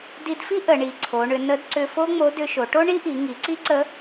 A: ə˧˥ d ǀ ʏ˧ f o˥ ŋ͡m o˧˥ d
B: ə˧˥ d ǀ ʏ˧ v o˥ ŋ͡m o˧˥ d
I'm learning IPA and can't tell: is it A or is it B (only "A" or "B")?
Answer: A